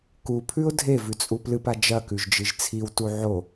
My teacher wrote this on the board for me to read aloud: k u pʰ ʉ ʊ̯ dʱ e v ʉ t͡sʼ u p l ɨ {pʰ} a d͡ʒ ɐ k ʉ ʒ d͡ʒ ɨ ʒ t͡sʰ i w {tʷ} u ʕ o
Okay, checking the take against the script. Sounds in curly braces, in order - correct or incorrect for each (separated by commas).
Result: incorrect, incorrect